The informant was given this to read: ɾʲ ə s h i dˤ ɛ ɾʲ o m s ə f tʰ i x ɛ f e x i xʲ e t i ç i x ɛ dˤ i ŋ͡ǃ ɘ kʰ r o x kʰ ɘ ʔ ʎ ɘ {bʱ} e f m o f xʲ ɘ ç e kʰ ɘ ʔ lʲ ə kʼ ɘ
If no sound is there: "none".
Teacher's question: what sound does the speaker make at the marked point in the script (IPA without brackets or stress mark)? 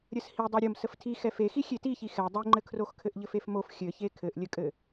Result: f